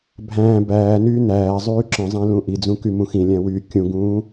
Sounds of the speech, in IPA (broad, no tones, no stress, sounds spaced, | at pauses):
bʱ æ̃ː b æː n yː n æː zˤ yː ǁ ə̃ zˤ æ̃ l ũ ʔ i d͡z ũ k y m ũ x ĩ lʲ æ̃ w yː kʲ ũ ɡ ũː